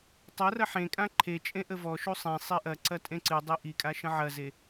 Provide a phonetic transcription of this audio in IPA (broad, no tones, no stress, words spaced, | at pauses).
tˤɐrɐ ħẽkʼã ǃʰet͡ʃʼẽ ʔəvɔʃu sˤẽsˤi ʔɐǀɐ tʼẽǀɨdˤi ʔikʼa ʃə̃ʕɐze